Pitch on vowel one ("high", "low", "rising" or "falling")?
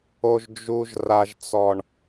low